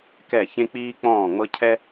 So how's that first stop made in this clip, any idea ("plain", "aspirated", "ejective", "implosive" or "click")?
plain